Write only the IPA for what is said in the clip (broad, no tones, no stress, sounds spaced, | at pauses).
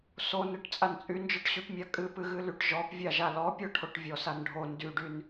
s o n ɨ ʈ t͡sʼ a n t͡sʼ y n d͡ʒ ɔ ʈ ɕ y p mʲ a kʼ ɨ p ɨ ɣ ɨ l y ʈ ʒ ɔ p vʲ a ʒ a l ɔ pʲ ɔ ʈʰ o ʈ vʲ ɔ s a n ɖʱ o n d y ɖ y n